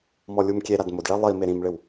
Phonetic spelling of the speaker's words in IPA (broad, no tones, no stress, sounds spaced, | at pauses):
m ɔ lʲ u m kʲ e ɾ a d m ʊ d ɭ ɛ lˠ i m e ɾ ĩ m ɭ ɪ w